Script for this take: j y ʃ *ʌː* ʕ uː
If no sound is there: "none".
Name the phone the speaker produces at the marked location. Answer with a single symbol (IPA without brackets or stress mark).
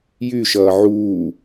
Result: ʌː